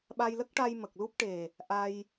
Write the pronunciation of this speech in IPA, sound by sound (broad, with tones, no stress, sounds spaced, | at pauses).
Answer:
ɓ a˧ j l ə˦˥ k̚ ʈ a˧ j m ə˨˩ k̚ l u˦˥ p̚ ʈ e˨˩ | ʔ a˧ j